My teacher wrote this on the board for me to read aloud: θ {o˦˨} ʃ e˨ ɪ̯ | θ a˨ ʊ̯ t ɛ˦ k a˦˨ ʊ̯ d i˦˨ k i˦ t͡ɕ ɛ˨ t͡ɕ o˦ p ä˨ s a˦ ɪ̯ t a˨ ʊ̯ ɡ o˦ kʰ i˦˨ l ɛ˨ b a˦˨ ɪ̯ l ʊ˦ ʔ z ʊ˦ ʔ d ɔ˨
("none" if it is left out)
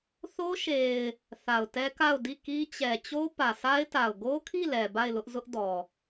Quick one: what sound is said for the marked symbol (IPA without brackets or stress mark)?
o˦